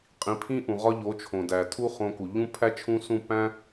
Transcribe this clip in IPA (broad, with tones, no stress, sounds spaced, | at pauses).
qʼ ĩ˨˦ pʰ ĩ˦ ʔ ũ˨ ʁ ɒ˧ ʎ o˨˦ t͡ʃʰ õ˨ d æ˨ tʰ u˦ χ õ˧ k u˨ ʎ ũ˦ pʰ æ˦ t͡ʃʰ ũ˦ s ũ˦˨ p æ̃˦